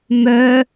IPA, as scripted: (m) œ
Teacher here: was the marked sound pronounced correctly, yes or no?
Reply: yes